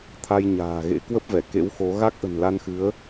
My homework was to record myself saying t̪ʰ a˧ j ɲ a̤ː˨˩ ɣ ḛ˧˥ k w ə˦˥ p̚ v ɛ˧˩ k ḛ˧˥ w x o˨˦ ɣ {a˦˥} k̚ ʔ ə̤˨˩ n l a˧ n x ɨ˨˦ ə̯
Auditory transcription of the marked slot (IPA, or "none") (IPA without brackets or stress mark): a˦˥